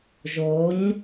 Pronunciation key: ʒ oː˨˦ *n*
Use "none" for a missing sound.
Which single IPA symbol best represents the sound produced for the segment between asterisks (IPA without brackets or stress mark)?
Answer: ɲ